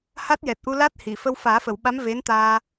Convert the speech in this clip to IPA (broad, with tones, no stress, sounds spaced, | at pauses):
h a˦˥ t̚ j ɛ˨˩ t̚ ʔ u˧ l a˦˥ t̚ h i˨˩˨ f ə˧ w f aː˨˩˦ f ə˨˩˨ w ɓ a˧˥ m v e˧˥ n t̪ aː˧